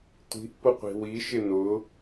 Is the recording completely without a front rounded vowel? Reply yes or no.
yes